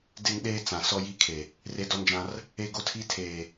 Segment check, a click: absent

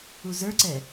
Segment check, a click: present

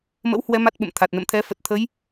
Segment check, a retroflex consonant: absent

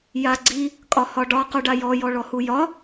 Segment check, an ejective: present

